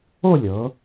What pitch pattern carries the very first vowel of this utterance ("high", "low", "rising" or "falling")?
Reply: falling